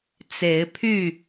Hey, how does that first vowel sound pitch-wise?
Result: rising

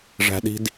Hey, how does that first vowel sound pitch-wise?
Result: high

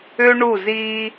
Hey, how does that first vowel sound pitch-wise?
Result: high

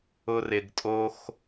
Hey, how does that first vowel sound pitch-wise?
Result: high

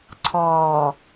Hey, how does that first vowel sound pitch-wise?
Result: low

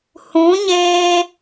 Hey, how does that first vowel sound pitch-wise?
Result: rising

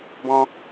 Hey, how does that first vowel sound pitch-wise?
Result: high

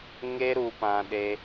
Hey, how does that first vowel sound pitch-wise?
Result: high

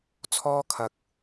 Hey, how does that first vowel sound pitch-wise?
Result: high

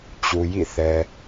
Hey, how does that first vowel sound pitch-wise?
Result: low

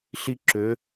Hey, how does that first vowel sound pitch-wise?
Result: high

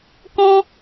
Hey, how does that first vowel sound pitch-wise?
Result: high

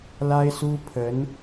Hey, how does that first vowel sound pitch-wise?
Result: high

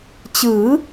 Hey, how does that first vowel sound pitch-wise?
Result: rising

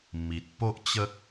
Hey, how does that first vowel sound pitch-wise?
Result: low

